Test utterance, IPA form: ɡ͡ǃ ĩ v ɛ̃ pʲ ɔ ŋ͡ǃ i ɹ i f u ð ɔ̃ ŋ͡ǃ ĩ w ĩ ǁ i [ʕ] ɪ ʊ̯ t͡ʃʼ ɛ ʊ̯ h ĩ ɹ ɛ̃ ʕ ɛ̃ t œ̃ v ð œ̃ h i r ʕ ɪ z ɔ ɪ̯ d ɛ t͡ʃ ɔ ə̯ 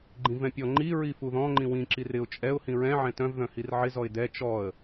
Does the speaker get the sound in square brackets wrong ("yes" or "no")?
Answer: yes